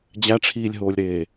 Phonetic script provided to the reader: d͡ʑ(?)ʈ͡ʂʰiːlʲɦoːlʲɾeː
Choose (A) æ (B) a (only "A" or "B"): A